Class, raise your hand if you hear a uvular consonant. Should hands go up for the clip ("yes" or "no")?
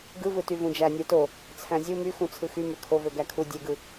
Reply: no